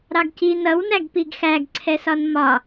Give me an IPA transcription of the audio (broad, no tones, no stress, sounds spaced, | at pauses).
ɾ ɑ ɡ c i n ʌ w n æ ɡ p i ɡ x æ ɡ ǀʰ ɛ s ɒ n m ɒ